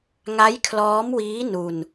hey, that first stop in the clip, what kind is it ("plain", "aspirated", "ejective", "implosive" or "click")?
aspirated